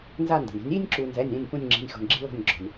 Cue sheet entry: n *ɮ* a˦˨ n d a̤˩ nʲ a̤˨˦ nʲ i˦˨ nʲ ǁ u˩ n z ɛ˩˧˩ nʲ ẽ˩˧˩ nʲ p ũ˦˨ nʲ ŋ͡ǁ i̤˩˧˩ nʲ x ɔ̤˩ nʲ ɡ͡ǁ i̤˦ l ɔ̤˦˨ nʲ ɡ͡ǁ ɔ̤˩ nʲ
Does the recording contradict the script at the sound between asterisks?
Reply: yes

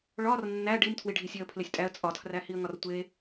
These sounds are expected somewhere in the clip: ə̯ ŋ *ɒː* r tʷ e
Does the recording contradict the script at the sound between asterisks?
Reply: yes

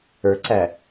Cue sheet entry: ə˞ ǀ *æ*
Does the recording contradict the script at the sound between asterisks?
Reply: no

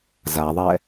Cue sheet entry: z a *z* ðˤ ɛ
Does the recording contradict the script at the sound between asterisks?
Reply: yes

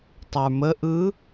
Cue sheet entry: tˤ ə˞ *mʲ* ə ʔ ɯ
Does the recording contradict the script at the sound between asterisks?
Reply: yes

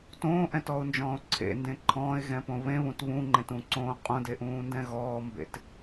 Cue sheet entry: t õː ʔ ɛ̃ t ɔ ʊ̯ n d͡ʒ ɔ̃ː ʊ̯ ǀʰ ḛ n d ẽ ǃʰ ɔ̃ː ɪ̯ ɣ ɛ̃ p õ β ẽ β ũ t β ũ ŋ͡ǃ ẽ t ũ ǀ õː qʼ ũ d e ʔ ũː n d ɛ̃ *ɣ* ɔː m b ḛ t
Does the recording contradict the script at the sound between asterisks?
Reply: no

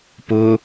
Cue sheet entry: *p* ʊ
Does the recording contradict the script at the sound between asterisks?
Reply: no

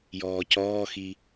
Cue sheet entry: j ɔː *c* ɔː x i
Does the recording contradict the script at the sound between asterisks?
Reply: no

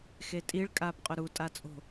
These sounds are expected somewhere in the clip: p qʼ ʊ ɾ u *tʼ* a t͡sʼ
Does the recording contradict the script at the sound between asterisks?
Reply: no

